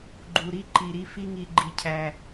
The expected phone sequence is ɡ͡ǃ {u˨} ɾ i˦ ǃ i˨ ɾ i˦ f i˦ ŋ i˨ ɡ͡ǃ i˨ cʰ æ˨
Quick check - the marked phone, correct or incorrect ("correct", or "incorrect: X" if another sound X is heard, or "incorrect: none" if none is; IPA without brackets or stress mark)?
correct